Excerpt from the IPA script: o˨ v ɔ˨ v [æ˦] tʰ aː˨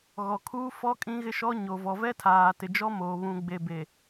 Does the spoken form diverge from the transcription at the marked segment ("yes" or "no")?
yes